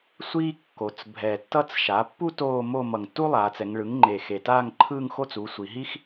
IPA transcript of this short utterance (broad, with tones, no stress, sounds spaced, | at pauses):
sʷ iː˥ kː o˩˧ t͡s bʱ ɛ˨˩ tː ʌ˥ t͡s ʃ a˩˥ pː u˥ t oː˥˧ m o˥˧ m ʌ˨˩ ŋ tː u˥ lˠ aː˩˧ t͡s ɛ˩˧ ŋ ɭ ɯ˩˥ ŋ ŋ͡ǃ eː˨˩ x e˨˩ t aː˥˧ ŋ ǃʰ ɯː˥˧ ŋ x o˥ t͡s u˩˥ sʷ i˩˧ ɦ i˥ x